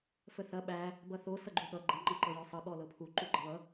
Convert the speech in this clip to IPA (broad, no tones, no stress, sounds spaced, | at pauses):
f ə θ ɐ ɓ æ | b ʌ θ o s ʌ ɡ͡ǃ u ɠ ʌ ɡ͡ǃ ɐ ŋ͡ǃ ʌ ǃ ɤ j ɔ sˤ ɤ ɠ ɔ l ɤ pʰ u ǃ u ɡ͡ǃ ɐ β ʌ